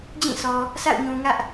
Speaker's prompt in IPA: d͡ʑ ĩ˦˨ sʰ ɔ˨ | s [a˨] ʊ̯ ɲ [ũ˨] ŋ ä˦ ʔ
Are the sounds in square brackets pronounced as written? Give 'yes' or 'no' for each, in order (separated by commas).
no, yes